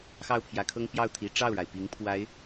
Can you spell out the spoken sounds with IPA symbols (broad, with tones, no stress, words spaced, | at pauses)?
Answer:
xɑ˥˩ʊ̯pʰjä˧˥kʰɤ˥ŋ pjɑ˥˩ʊ̯t̪ʰi˧˥ ʈ͡ʂɑ˥˩ʊ̯ɻa˩ɪ̯ pi˧˥ŋpʰwa˧˥ɪ̯